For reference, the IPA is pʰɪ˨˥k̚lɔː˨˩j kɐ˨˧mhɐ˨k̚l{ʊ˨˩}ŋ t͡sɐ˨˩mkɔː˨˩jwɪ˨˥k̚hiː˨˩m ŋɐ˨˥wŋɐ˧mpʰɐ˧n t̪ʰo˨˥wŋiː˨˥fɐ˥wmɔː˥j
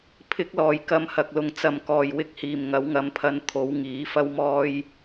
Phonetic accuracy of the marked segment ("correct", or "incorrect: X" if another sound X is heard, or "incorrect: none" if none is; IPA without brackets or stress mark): incorrect: ʊ˨